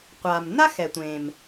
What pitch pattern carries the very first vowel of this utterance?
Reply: low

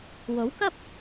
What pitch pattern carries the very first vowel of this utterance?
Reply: rising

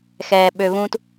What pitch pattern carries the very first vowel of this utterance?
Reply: low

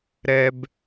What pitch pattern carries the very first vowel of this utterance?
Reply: low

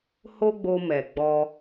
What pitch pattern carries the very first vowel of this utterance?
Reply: high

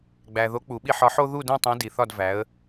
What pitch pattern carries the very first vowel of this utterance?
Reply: low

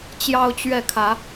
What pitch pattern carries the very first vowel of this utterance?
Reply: high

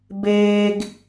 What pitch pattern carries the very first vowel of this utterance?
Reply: high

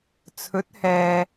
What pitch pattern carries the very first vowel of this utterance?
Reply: rising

